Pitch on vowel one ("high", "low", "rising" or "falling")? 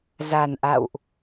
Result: low